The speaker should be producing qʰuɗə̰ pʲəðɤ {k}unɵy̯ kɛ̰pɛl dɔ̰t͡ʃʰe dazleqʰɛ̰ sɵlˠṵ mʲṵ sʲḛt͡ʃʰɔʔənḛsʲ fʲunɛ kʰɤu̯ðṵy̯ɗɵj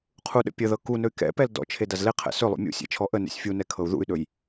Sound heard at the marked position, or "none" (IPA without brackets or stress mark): k